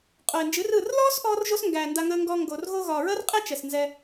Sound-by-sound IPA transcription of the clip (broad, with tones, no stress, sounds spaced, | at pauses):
qʼ o˨ ɪ̯ n d͡ʒ ɨ˨˦ r ɯ˦˨ r l ɔː˦ s ʔ ɔː˧ r ʒ o˧ s ŋ ɡ æː˨ n d a˧ ŋ əː˧ ŋ ɡ ɔː˧ ŋ ɡ o˨ r ɣ o˧ ɣ ɒː˨ ɹ əː˦ r qʼ ɛ˦ t͡ʃ ɛ˨ s n z ɛ˧